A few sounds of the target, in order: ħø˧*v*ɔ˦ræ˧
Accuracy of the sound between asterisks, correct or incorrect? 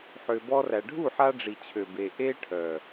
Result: incorrect